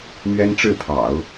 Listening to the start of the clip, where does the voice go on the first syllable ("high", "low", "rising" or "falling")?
high